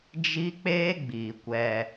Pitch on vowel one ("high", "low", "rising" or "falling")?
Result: high